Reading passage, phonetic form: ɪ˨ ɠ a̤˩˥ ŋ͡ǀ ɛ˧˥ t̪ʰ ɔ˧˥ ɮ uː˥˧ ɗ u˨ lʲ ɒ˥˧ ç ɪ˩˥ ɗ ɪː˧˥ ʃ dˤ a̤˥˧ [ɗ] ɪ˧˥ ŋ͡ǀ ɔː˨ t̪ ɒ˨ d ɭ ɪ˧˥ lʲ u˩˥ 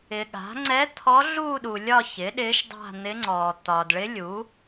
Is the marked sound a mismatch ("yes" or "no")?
yes